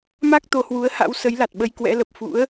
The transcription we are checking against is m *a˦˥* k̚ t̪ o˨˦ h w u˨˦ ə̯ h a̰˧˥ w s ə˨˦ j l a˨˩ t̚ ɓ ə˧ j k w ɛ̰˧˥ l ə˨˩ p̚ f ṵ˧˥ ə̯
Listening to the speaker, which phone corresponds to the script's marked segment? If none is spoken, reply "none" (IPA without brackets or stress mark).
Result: a˦˥